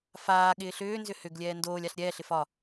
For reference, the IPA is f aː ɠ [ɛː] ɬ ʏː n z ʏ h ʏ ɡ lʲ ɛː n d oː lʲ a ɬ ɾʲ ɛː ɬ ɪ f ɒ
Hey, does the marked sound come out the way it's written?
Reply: no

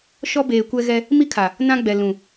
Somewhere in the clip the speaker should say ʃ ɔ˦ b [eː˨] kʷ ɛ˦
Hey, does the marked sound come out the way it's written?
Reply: yes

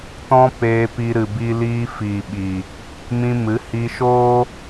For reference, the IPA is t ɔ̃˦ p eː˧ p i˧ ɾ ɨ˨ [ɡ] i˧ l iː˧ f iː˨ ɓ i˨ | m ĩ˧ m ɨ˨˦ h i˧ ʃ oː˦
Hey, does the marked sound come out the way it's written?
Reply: no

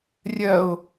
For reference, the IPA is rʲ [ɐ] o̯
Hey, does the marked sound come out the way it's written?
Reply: yes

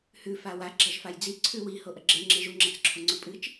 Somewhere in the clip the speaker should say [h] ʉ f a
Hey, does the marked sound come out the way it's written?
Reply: yes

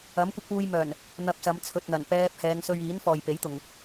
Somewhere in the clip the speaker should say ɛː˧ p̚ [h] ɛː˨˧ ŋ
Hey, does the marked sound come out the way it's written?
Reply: yes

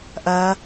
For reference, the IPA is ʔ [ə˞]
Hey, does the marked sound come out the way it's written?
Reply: no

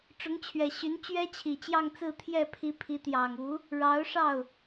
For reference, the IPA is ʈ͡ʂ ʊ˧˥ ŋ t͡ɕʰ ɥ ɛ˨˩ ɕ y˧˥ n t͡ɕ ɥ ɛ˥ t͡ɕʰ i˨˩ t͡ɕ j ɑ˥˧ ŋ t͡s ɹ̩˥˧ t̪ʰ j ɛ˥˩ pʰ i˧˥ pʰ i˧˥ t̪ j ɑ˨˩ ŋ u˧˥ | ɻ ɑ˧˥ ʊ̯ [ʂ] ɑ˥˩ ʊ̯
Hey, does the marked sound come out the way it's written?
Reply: yes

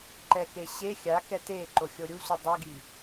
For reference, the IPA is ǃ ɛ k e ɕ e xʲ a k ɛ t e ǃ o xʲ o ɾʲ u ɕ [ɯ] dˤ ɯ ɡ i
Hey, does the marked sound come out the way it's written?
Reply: no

